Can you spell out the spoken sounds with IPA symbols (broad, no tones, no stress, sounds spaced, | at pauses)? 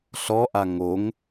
ɬ ɔ ʔ a ŋ o ŋ